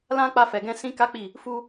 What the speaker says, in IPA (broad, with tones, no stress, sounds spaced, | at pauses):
l ã˧ k͡p a˧ f ɛ˨ ɡ ɛ̃˧ s ĩ˦ k a˦ k͡p i˦˨ | f u˧